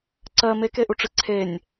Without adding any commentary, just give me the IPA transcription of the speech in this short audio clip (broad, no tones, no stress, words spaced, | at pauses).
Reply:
ǀɜ mekeʔuʈ͡ʂɨ ǀʰenʲ